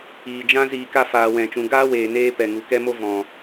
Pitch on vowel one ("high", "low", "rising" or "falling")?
low